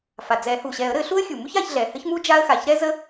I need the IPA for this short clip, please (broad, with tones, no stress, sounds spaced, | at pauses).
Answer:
f a˩ d͡z ɛ˨˩˦ h u˩ ɕ ɛ˨˩˦ ə̯ ɾ ɘ˨˩˦ ɬ u˥ ə̯ xʲ u˩ m u˥ ç a˨˩˦ ç ɮ ɛ˩ h ɘ˥ ç m u˥ d͡ʒ a˥ ə̯ x a˩˧˩ ç ɾ ɛ˥ z ə˥